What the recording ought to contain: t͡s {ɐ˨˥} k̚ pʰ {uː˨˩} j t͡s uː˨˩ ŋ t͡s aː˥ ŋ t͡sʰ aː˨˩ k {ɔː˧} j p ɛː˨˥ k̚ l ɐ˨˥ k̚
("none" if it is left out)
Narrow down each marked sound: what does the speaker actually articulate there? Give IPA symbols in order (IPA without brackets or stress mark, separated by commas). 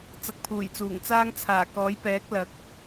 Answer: ɐ˧, uː˨˩, ɔː˨˥